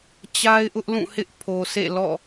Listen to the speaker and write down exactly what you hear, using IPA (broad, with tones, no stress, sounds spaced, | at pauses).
t͡ɕ a˦ ɪ̯ ʔ ʊ˦ ʔ l ũ˦˨ h ɪ˦ ʔ pʰ o˨ sʰ ḛ˦˨ l ɔ̰˦˨